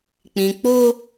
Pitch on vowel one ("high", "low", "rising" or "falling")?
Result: low